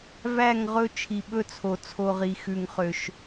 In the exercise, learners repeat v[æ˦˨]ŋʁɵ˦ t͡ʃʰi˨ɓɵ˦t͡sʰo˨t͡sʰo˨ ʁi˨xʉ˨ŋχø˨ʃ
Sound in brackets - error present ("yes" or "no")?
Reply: no